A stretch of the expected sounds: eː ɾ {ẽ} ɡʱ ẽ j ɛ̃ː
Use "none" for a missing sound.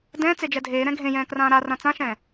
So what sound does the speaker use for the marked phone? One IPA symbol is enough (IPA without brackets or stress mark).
ɛ̃